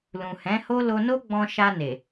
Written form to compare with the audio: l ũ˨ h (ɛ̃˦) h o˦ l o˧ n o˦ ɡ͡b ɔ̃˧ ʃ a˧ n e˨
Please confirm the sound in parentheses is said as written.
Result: no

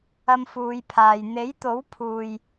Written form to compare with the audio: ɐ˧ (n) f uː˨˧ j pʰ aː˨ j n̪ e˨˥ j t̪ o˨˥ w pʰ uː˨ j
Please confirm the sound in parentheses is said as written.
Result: no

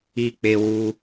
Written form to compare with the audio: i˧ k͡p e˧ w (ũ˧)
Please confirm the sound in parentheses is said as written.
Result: no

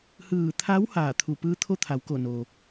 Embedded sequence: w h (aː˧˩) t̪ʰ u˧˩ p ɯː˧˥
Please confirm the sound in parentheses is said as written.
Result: yes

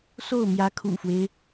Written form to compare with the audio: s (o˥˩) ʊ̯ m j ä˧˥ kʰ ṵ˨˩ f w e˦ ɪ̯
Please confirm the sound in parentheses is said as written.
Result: yes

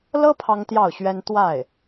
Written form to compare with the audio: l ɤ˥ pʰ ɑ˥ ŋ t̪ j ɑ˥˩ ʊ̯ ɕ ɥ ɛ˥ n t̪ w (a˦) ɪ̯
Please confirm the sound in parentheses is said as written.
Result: no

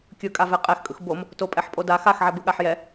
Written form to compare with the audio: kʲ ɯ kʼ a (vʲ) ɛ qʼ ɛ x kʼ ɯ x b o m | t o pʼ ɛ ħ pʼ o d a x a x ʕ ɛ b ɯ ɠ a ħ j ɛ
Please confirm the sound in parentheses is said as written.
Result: no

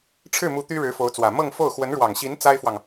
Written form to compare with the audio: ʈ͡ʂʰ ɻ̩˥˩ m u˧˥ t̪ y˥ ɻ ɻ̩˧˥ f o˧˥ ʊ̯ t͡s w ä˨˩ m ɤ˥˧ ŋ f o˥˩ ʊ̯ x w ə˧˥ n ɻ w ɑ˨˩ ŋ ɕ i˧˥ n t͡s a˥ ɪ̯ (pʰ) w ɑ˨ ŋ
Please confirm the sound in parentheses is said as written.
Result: no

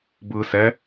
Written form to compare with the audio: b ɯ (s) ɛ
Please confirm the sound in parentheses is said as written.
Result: yes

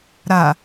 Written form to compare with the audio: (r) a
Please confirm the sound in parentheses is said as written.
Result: no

